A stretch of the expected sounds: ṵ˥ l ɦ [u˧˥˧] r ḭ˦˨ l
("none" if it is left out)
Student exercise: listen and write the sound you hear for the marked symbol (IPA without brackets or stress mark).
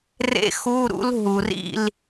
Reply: u˩